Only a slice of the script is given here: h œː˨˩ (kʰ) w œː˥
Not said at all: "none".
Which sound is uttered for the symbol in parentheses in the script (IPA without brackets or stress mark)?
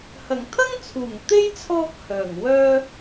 ŋ